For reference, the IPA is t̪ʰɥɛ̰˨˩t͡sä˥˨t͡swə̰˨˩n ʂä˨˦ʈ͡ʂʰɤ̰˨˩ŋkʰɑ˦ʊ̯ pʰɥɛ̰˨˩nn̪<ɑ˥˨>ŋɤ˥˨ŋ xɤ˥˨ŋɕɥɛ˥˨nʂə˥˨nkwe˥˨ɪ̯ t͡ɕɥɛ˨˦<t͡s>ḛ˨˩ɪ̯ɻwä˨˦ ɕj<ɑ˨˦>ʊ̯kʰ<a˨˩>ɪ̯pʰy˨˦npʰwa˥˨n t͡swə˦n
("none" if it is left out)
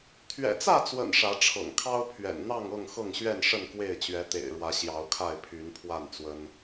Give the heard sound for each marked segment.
ɑ˥˨, t̪, ɑ˨˦, a˥˨

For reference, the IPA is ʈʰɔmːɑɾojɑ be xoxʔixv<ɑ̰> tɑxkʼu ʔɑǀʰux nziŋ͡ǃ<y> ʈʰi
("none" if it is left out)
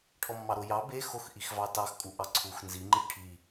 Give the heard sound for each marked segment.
ɑ, i

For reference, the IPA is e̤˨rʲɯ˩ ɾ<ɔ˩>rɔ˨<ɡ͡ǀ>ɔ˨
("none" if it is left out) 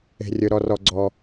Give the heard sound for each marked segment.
ɔ˨, ɡ͡ǀ

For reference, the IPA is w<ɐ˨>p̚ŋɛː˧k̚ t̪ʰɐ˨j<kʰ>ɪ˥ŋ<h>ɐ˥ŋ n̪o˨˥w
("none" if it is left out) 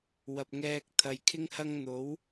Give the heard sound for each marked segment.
ɐ˨, kʰ, h

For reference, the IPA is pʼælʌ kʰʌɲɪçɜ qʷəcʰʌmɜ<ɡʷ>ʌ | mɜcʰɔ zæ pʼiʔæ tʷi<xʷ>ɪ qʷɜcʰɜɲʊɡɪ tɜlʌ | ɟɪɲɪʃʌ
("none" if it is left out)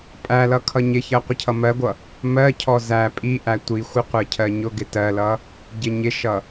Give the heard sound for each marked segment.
ɡʷ, xʷ

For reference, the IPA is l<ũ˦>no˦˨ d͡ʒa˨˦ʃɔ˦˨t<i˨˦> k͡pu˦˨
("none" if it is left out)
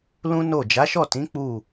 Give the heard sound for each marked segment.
ũ˦, ĩ˨˦

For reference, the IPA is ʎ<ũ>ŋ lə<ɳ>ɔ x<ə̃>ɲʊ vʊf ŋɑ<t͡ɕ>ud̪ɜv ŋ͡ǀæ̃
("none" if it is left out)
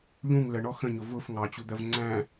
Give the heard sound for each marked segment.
ũ, ɳ, ə̃, t͡ɕ

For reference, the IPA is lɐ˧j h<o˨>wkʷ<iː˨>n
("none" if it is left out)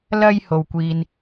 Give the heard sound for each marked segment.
o˨, iː˨

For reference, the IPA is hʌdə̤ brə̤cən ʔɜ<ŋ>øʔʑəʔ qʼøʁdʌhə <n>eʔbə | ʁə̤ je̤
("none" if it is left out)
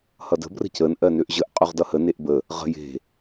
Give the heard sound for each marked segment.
n, n

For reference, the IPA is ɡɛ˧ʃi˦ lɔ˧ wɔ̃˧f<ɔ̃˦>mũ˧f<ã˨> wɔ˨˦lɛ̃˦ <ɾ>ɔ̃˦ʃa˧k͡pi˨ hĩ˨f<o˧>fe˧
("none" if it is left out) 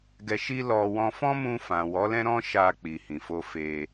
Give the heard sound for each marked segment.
ɔ̃˦, ã˨, ɾ, o˧

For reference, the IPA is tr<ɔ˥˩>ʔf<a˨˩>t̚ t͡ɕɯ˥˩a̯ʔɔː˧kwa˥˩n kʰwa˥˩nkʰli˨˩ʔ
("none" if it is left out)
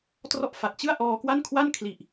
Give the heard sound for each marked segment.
ɔ˥˩, a˨˩

